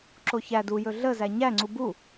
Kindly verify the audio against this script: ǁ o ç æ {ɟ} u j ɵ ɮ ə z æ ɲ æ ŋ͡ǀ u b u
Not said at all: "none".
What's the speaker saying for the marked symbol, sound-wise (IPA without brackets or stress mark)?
d